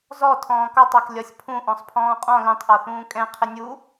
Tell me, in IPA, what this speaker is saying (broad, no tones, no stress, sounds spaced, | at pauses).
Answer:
z ɔ tʰ ɔ̃ː k ɒ tˤ ɑ k lʲ ɒ sʲ pʰ ũ ʔ ɔ̃ sˤ pʰ ɔ̃ː qʼ ɔ̃ l ɛ̃ tˤ ʔ ɔ θ ũː kʼ ɛ̃ qʰ ɪ nʲ u